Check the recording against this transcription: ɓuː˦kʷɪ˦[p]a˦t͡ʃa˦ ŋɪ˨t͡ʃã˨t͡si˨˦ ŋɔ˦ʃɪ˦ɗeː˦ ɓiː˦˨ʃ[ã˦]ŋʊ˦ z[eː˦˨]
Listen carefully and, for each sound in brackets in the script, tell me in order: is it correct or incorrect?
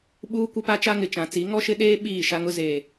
correct, incorrect: a˦, incorrect: eː˨

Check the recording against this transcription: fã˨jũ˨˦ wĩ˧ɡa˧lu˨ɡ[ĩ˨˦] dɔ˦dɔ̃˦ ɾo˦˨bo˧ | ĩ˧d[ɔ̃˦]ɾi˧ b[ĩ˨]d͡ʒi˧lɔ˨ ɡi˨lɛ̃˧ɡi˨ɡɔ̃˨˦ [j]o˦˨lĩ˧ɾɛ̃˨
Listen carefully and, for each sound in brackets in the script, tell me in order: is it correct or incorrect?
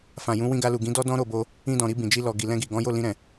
correct, incorrect: ɔ̃˨, correct, correct

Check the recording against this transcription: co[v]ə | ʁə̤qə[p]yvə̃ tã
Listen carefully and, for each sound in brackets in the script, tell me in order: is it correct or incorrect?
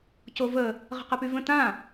correct, correct

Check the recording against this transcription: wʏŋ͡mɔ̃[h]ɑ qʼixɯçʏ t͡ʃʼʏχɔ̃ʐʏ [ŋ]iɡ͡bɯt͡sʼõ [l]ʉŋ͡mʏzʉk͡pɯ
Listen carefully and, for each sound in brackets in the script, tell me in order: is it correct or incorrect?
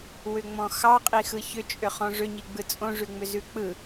incorrect: x, incorrect: ɲ, incorrect: ʐ

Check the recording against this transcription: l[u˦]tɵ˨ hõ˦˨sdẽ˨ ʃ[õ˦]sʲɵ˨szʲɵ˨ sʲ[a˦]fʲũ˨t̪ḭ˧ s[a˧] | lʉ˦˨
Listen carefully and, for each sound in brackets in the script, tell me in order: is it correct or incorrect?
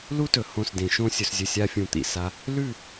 correct, incorrect: õ˧, incorrect: a˧, correct

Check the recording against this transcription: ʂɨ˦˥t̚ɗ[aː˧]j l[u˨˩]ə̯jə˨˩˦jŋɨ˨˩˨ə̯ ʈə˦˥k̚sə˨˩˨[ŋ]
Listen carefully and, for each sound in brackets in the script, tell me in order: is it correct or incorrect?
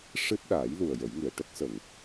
incorrect: aː˨˩˦, correct, correct

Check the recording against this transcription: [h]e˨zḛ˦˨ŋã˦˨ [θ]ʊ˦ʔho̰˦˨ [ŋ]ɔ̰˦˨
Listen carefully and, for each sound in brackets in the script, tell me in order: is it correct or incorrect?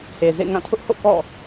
correct, incorrect: tʰ, incorrect: k

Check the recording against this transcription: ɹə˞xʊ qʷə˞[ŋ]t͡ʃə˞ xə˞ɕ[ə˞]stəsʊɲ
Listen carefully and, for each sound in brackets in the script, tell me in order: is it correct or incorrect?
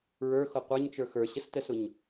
incorrect: ɲ, incorrect: ə

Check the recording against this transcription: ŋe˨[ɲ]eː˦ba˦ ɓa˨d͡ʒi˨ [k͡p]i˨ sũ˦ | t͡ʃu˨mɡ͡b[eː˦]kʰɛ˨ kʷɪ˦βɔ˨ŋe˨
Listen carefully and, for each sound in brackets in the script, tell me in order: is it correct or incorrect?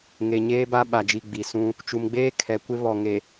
correct, incorrect: ɡ͡b, correct

